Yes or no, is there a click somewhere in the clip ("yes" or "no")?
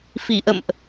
no